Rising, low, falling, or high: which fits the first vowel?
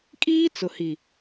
high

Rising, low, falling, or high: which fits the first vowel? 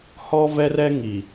high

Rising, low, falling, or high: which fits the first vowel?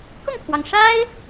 falling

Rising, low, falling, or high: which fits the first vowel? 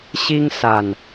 high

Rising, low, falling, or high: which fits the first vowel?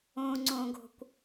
high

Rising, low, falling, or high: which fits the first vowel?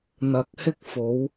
rising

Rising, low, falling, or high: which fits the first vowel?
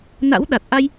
rising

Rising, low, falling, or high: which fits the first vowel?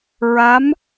rising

